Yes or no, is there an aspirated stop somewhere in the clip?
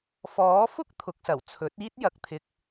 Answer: yes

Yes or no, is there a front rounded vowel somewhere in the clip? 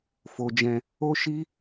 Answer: no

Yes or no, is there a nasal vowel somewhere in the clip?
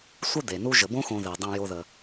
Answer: yes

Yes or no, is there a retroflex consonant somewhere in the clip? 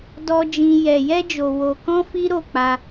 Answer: no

